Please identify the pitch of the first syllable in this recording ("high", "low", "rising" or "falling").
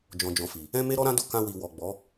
low